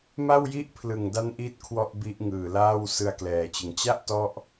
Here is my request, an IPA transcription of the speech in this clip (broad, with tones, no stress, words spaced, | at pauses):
ma˥˩wji˥˩ʔpʰlɯ˨˩ŋda˦˥n ʔi˥˩t̚kʰwɔ˥˩ʔbi˦˥ʔ ŋɯː˨˩laː˥˩w sɯ˧a̯klɛː˩˦t͡ɕɯ˩˦ŋ t͡ɕa˥˩ʔtɔ˦˥ʔ